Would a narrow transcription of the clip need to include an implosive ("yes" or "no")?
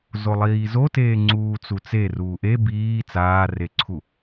no